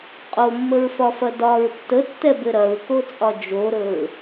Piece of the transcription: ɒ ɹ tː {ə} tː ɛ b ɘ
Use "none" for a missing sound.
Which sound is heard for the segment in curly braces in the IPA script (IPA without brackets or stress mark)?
ə